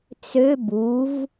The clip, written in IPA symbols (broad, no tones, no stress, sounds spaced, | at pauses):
t͡s ø b u v